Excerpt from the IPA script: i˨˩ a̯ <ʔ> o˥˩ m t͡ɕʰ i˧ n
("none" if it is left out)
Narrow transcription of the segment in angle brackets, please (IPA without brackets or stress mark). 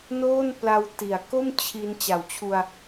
k